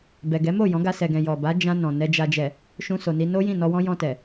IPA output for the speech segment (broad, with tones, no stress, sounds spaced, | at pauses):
b ɛ˨ ɡ ɛ˨˦ m o˦˨ j ɔ̃˨˦ ɡ a˧ s ɛ˨ ɡ ɛ̃˨ j ɔ˨ b a˨˦ d͡ʒ ã˧ n ɔ̃˨ n ɛ˨ d͡ʒ a˨ d͡ʒ ɛ˨ | ʃ ũ˧ s o˨ n i˧ n o˦ j ĩ˦˨ n ɔ˧ w ɔ̃˦ j ɔ̃˧ t ɛ˨